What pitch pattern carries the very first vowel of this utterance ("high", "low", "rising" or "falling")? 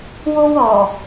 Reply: high